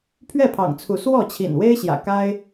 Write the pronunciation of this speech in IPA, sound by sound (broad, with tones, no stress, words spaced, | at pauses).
pʰɥɛ˥˨pʰɑ̰˨˩ŋt͡sʰu˨˦ swɔ˥˨t͡ɕʰḭ˨˩n we˦ɪ̯ɕjä̰˨˩ka˦ɪ̯